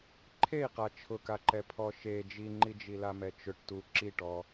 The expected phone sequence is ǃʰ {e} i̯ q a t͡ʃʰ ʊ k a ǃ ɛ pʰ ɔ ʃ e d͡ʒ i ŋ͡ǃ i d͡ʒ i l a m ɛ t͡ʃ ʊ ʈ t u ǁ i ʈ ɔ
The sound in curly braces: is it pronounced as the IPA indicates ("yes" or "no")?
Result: yes